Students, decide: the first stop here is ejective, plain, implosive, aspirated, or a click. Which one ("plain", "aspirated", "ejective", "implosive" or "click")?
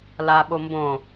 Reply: implosive